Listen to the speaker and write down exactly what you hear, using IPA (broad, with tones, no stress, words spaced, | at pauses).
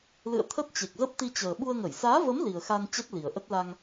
lɨ̰˧˨ə̯t̪ʰə˦˥t̚t͡ɕe˨˩k̚zə˦˥p̚ t̪i˧t͡ɕəː˨˩ ɓu˧ə̯ŋə˧˩j saː˨˦və˨˦m li˨˩ə̯xa˧n t͡ɕɛ˦˥t̚li˨˩ə̯ʔə˦˥t̚ la˧ŋ